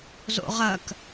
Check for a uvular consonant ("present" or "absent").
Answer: present